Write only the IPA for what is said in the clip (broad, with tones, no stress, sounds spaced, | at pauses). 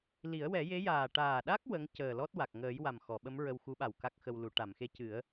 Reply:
l i˨˩˦ ə̯ w ɛ˨˩˦ j e˧˥ j aː˨˩ ʈ aː˨˩ ɗ a˦˥ k̚ w ə˧˥ ŋ c əː˨˩ l ɔ˦˥ t̚ w a˨˩ k̚ ŋ əː˨˩˦ j w a˨˩ m x ɔ˨˩˨ ɓ ə˧˥ m ɹ ə˧ w x u˧˥ ɓ a˨˩ w k a˦˥ k̚ x ə˧ w l u˨˩˦ ʈ a˨˩˨ m x e˧˥ c ɨ˨˩˦ ə̯